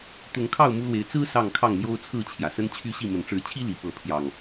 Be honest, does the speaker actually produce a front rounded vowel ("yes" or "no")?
yes